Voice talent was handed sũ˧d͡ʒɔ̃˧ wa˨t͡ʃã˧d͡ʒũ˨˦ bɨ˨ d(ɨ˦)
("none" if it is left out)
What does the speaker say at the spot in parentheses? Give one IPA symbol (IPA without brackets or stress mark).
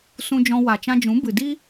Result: i˦